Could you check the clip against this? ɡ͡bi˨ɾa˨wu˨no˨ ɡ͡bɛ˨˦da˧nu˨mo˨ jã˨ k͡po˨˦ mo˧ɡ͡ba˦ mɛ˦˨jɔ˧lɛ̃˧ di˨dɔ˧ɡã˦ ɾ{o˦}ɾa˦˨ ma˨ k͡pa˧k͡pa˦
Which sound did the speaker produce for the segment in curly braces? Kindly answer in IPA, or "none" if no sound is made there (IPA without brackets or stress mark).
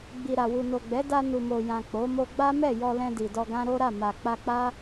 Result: o˦